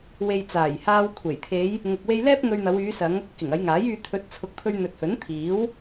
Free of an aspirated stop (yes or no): no